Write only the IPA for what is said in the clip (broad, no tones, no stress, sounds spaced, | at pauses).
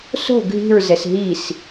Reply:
s o̤ ɡʱ i̤ ɹ z ɛ s ɦ i s